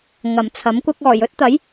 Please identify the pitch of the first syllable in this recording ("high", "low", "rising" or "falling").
low